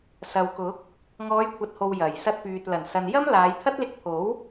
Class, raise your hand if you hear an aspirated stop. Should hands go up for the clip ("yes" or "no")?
yes